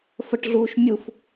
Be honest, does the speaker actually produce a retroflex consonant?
yes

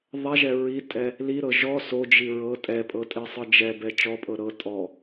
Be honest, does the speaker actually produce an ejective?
yes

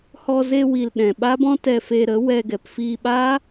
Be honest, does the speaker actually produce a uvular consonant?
no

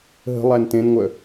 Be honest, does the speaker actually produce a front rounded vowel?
yes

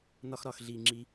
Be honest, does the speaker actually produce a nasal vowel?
no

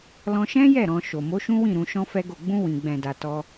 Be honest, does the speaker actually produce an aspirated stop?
no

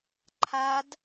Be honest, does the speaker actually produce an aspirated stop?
yes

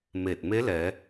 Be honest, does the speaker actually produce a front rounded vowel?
no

